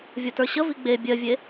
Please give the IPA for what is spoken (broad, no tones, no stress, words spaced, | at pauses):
vʲʌtə˞ɕə viɡ͡be bʲɜvʲe